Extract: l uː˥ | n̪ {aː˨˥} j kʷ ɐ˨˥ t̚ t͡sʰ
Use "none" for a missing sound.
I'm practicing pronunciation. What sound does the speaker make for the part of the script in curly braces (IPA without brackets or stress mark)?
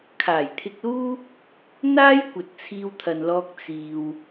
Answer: aː˥